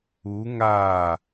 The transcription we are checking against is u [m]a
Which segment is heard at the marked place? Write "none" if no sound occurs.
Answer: ŋ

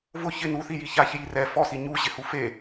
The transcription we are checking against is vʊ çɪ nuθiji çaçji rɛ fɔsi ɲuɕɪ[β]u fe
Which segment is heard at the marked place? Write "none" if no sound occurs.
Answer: h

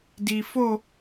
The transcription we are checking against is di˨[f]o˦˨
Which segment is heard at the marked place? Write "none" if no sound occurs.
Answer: f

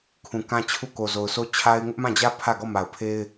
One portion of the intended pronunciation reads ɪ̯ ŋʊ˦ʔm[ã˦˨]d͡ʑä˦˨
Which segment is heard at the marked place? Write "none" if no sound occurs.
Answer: ã˦˨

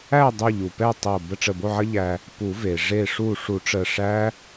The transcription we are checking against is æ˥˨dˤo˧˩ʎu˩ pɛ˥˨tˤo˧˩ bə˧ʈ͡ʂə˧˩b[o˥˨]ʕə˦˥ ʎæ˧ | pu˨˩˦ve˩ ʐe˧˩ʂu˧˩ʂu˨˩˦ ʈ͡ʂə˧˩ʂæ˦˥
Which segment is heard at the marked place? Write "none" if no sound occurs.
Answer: o˥˨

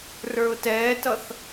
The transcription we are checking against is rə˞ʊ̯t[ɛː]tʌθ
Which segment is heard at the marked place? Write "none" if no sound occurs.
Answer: ɛː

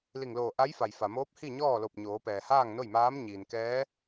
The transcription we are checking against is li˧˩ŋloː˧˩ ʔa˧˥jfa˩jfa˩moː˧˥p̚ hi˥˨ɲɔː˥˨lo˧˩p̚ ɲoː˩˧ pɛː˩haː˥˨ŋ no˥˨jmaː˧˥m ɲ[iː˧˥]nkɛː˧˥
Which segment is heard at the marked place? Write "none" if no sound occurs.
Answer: iː˩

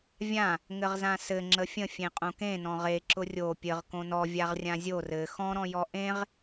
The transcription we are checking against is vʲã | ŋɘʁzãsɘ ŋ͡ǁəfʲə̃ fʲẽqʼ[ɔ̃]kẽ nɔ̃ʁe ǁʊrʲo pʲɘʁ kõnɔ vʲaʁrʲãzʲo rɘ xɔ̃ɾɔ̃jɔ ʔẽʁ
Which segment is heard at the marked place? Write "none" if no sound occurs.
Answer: õ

